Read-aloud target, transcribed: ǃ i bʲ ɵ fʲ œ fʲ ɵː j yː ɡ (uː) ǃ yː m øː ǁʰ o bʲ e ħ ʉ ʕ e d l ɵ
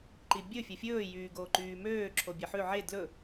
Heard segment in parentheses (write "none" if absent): oː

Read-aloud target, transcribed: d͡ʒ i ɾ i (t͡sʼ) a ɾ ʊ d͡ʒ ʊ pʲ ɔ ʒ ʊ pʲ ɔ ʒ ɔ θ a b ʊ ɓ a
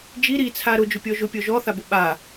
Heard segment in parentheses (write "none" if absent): t͡sʰ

